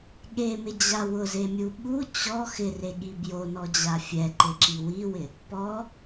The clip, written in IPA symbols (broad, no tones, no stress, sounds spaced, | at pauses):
ɠ e m ɪ d͡ʑ a w ʊ z e mʲ u ɓ u t͡ɕ ɔ x ɪ r e ɠ i b j o n ɔ d͡ʑ a fʲ ɛ ǃ ɪ ǁ i w i w ɪ | p ɔ